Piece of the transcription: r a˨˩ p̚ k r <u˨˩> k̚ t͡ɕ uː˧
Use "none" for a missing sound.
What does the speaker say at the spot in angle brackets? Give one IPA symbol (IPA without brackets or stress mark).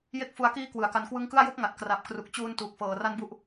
u˨˩